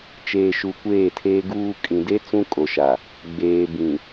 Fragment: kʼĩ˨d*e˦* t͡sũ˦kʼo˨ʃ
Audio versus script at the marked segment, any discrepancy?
no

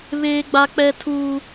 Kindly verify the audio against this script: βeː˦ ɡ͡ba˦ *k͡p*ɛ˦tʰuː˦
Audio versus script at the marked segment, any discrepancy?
no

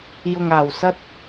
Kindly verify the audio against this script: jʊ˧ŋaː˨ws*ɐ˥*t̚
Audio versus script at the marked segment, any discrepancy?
no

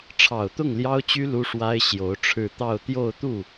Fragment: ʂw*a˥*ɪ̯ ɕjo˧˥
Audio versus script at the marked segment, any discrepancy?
no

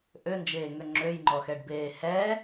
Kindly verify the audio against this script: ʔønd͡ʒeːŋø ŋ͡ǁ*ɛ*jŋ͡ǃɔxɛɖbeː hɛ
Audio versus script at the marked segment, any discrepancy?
yes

